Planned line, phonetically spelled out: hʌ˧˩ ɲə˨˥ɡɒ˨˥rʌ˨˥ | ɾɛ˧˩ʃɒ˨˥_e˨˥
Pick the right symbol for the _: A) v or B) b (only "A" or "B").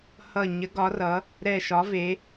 A